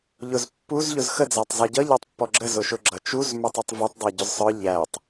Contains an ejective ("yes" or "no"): no